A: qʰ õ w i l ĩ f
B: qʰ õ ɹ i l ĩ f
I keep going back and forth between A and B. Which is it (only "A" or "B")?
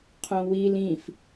A